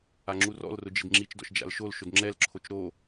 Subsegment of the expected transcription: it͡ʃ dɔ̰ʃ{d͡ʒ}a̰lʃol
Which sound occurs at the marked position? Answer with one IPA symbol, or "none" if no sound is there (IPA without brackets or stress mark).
d͡ʒ